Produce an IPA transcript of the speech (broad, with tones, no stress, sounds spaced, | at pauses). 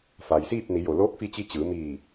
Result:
f a˩ j s iː˥˨ p̚ n i˩˧ j o˩ l oː˧˥ k̚ f i˧ t͡ɕ i˧ t͡ɕ ɯː˩˧ m iː˧˩